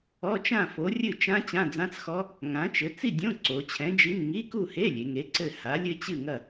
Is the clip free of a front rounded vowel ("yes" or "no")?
yes